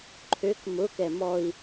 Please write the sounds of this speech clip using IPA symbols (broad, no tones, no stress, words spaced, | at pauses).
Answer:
ǃʰøk mʊ kɛmɔi̯